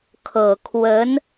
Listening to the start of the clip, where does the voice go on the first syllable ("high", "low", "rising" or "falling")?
low